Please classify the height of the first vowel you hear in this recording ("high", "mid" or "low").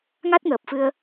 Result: low